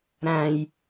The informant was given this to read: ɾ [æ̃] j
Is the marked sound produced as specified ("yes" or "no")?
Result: yes